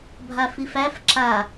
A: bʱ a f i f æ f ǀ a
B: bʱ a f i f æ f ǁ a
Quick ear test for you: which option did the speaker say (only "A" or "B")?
B